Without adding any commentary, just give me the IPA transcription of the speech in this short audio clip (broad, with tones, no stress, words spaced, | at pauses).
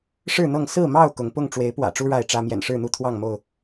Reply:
ʂɻ̩˥˨n̪ɤ˥˨ŋ sɹ̩˥˨mɑ˥˨ʊ̯ kʊ˨˦ŋ pʊ˥˨ŋ ʈ͡ʂwe˨˦ɪ̯pwä̰˨˩ʈ͡ʂu˦ ɻa˥˨ɪ̯ʈ͡ʂä˦ mjɛ̰˨˩nʂɻ̩˥˨n̪u˥˨ t̪ʰwɑ˥˨ŋmo˥˨ʊ̯